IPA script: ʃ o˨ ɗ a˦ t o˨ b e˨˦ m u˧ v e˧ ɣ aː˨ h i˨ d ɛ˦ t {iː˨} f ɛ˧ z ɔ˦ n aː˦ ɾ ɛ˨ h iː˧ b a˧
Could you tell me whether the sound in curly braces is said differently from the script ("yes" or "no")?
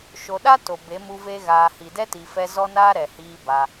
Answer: yes